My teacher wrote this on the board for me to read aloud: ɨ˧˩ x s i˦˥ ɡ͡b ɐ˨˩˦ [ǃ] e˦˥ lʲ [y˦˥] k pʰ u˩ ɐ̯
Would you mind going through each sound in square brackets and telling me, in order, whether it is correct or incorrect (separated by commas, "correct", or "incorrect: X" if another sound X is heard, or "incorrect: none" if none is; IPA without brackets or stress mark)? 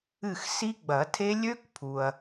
incorrect: tʰ, incorrect: ø˦˥